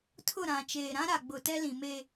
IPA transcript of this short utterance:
tʰ ʊ˦˨ ɾ ã˨ t͡ʃ eː˨ ɾ ã˦ ɾ a˨ ɡ͡b ʊ˨ t ɛ˦ l ĩ˨ m e˨

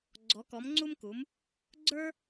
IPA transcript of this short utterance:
ɡ͡ǀ ɔ˨˥ k ɔ˨˥ m ŋ͡ǀ u˥ m k u˨˥ m | ɡ͡ǀ ə˞˥

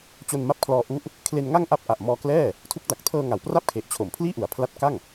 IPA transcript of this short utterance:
t͡ɕ o˧ n m a˥˩ p̚ kʰ l ɔː˧ ʔ u˦˥ ʔ | kʰ l e˧ n ŋ a˥˩ ŋ ʔ a˦˥ p̚ ʔ a˨˩ ʔ m ɔː˧ k l ɛː˥˩ | tʰ u˦˥ k̚ d a˨˩ k̚ tʰ ɤː˧ ŋ a˩˦ w p r a˥˩ p̚ kʰ e˨˩ ʔ t͡ɕʰ o˩˦ m pʰ l iː˥˩ ʔ u˩˦ a̯ pʰ l a˦˥ t̚ k a˥˩ ŋ

